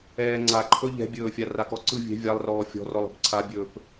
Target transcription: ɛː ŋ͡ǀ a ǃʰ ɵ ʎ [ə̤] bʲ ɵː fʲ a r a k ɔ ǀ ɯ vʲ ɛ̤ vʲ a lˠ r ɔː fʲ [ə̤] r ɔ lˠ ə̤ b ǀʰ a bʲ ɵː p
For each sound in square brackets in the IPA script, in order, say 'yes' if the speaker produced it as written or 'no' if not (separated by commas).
no, no